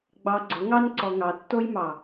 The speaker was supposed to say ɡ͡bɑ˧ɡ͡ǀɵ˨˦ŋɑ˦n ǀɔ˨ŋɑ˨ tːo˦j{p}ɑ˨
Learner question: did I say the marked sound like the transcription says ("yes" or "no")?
no